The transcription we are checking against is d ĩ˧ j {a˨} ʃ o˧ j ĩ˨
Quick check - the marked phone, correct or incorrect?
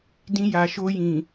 correct